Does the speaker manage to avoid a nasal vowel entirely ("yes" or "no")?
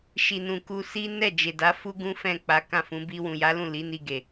no